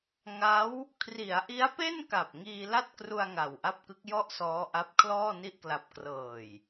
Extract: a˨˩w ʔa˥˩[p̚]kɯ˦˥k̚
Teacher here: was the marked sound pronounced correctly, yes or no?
yes